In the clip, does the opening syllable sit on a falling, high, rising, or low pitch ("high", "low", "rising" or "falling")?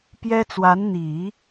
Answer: high